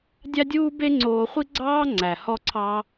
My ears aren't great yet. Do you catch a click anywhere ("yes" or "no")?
yes